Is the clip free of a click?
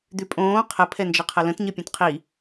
yes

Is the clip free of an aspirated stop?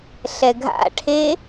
no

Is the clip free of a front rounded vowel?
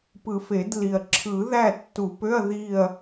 no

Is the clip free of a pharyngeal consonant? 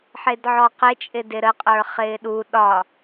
no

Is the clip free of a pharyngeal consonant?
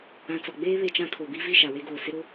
yes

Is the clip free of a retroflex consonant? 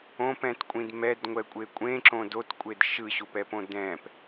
yes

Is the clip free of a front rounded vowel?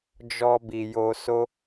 yes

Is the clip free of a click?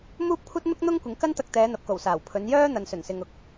yes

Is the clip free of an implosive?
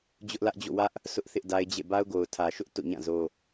yes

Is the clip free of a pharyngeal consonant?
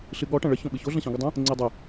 yes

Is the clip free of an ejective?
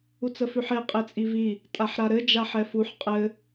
no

